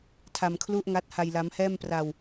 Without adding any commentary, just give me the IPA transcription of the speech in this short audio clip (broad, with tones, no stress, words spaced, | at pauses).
tʰa˧mkʰlu˥˩ʔŋa˦˥t̚ ha˧jla˦˥mhɛː˥˩mpra˧w